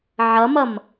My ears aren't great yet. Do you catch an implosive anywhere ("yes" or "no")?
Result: no